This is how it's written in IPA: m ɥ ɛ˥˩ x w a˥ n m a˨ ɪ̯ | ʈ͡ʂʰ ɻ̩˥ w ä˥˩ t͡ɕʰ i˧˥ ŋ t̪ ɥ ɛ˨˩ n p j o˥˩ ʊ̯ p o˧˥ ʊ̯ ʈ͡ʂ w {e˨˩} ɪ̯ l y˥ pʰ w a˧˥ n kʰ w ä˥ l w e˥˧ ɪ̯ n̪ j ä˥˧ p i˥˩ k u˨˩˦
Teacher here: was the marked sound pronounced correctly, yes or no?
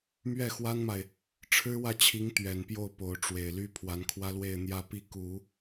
yes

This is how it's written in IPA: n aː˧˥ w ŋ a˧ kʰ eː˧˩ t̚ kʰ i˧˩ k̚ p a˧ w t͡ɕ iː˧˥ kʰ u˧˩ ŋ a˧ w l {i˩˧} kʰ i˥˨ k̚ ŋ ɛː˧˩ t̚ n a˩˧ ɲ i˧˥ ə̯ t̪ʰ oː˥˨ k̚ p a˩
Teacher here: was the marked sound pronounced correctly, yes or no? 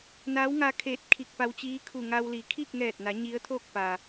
yes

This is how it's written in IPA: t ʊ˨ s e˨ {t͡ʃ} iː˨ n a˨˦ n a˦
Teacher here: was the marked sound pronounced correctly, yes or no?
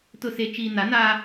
yes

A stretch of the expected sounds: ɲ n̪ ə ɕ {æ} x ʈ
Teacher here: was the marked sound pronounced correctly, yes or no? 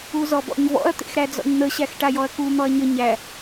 yes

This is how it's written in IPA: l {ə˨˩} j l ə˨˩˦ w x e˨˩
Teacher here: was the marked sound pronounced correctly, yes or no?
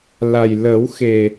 no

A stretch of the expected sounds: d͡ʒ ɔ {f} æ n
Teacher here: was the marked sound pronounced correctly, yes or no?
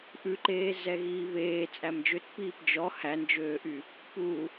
no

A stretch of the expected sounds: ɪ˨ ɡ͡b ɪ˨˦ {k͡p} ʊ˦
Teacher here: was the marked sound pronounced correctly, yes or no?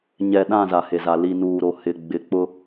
yes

